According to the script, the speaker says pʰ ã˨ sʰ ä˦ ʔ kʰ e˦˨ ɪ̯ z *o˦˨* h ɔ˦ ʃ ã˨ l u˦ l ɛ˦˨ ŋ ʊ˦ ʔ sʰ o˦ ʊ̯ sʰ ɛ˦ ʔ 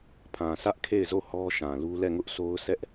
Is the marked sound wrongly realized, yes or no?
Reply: no